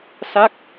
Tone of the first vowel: falling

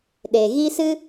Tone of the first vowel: low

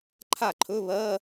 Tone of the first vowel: falling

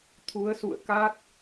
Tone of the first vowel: rising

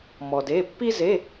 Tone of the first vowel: low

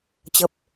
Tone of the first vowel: low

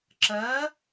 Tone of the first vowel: rising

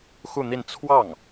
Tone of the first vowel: falling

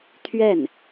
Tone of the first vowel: falling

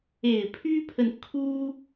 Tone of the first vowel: low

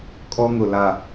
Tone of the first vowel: high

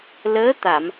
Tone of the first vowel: rising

